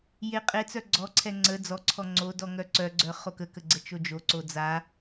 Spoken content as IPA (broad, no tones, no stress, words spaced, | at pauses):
jeqʼet͡sœ ɡ͡ǀɔǀʰɛ ŋ͡ǀə d͡zɔǀʰɔ ŋ͡ǀodɔ ŋœǀœɡ͡ǀœ χokəkə ɡ͡ǀət͡ʃod͡ʒoǀo d͡za